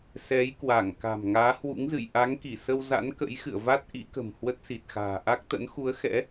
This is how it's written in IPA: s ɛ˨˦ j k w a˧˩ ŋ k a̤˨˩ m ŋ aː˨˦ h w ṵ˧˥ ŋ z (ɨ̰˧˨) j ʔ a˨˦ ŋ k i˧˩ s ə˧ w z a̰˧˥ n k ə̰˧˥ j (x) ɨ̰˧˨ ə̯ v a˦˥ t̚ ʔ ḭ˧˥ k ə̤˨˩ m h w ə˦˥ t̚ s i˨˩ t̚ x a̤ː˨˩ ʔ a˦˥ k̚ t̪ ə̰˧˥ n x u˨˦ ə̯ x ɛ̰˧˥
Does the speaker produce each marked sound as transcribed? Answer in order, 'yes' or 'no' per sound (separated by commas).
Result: yes, yes